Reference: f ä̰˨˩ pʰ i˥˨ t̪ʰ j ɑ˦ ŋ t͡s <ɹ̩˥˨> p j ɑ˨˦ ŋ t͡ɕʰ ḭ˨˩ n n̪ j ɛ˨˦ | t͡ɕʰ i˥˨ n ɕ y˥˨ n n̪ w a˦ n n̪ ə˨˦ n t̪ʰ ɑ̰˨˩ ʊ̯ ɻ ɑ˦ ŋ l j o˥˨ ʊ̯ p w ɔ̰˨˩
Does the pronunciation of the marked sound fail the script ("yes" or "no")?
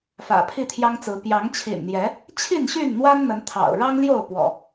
yes